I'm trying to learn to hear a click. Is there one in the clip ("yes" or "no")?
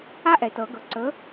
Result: yes